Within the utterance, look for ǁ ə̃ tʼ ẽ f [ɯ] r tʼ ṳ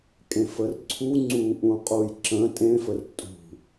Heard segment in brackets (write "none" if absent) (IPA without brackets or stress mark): ə